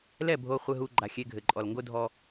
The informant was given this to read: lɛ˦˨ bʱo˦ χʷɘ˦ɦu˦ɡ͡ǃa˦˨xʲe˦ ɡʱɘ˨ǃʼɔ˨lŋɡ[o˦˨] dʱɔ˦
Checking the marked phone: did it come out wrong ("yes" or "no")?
yes